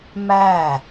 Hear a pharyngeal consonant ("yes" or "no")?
no